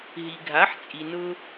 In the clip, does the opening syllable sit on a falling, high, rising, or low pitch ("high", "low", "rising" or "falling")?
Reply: low